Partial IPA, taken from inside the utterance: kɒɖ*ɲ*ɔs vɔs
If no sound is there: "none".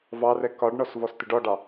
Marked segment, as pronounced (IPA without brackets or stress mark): ɳ